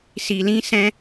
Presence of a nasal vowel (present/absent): present